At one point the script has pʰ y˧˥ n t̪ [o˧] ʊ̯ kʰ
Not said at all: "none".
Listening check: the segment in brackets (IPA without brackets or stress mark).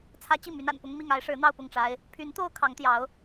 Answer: o˥